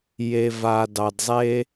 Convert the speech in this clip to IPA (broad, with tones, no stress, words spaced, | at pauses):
je˨va˨ dɑ˨dzˤe˦